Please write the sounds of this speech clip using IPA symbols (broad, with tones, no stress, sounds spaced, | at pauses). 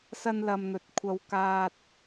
s ɐ˥ n l ɐ˧ m n̪ ɵ˨˥ t̚ kʷʰ ɐ˧ w k aː˧ t̚